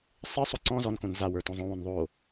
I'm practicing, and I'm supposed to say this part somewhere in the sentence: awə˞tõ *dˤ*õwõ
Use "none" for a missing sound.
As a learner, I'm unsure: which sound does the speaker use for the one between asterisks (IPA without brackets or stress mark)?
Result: zˤ